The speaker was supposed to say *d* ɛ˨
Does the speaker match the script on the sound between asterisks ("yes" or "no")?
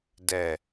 yes